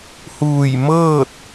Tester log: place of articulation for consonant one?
glottal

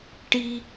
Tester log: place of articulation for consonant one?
retroflex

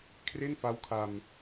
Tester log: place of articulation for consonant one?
velar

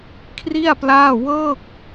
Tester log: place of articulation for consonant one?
velar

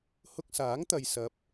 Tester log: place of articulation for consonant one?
glottal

